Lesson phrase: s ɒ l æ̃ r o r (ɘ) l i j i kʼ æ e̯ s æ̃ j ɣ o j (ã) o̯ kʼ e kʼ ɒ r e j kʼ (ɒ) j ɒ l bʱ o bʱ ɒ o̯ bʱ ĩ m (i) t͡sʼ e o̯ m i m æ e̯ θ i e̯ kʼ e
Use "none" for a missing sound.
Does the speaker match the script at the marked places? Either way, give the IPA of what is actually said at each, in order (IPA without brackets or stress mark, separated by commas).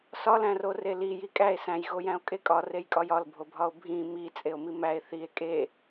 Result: e, æ̃, ɒ, i